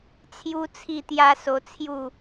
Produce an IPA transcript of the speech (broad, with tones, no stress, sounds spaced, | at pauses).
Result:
t͡sʰ j u˦ t͡sʰ i˥˧ t̪ j a˦ s o˧ t͡sʰ j u˥˧